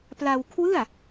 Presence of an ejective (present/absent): absent